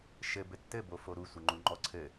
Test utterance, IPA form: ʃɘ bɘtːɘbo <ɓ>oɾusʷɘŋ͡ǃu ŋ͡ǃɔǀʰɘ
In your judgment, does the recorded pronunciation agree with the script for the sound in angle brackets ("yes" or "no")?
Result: no